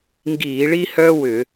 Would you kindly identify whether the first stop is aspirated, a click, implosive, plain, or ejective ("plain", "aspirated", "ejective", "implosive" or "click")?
plain